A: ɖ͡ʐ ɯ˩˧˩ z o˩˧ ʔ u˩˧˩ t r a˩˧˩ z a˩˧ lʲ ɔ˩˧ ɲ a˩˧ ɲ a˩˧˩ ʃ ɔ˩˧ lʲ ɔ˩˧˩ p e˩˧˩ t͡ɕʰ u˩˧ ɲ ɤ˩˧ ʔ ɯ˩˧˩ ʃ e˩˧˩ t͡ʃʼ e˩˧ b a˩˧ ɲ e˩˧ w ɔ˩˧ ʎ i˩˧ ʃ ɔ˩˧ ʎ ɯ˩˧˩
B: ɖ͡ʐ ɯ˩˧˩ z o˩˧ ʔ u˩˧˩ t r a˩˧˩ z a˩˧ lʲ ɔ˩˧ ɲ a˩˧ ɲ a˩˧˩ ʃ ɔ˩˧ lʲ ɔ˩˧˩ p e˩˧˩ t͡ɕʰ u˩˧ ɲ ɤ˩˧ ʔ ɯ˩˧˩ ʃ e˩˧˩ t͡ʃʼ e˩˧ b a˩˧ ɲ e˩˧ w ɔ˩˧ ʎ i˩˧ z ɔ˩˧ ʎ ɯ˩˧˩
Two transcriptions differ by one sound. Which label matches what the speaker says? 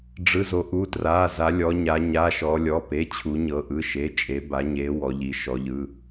A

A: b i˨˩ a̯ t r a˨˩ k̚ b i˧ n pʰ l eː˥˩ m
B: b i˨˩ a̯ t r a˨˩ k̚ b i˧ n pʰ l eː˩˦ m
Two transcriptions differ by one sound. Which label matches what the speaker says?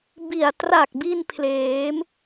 B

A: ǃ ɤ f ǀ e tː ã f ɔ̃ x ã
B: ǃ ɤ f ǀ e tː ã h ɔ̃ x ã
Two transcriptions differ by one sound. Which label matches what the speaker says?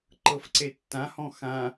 B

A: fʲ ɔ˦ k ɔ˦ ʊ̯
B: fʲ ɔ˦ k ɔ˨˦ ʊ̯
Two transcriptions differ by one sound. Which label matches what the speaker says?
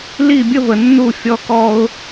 A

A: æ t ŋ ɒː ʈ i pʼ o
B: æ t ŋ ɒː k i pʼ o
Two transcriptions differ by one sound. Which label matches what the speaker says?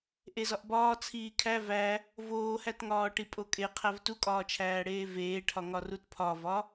A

